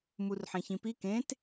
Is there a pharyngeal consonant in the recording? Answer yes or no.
yes